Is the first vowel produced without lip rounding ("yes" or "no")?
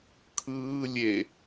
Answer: yes